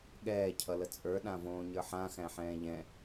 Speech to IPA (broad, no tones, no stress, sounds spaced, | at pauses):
ɠ ɛː cʰ ʌ l ə t͡sʼ ə˞ ɗ ã v õː ɲ ə˞ ħ ã x æ̃ ħ ɛ̃ː ʎ ɛ̃